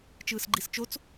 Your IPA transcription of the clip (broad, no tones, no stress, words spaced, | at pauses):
t͡ʃɯːsɡ͡ǃist͡ʃot͡s